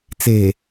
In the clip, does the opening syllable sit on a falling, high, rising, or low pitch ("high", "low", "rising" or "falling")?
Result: low